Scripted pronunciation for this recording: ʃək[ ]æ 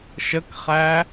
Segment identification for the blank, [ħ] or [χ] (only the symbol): χ